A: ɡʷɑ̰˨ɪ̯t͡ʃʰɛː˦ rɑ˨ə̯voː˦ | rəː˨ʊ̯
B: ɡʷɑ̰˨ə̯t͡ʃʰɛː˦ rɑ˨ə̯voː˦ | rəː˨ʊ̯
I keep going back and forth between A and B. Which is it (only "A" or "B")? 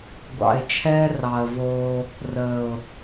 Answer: A